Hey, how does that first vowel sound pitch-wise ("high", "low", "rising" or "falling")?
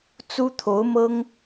high